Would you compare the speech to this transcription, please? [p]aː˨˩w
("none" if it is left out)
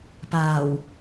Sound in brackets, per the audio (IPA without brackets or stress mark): p